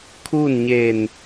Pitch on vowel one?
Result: falling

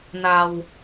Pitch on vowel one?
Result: low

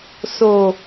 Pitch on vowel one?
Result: low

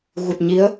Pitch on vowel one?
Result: low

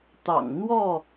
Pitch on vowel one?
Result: low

